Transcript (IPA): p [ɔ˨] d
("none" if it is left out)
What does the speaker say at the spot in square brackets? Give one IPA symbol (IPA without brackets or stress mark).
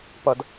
ʌ˨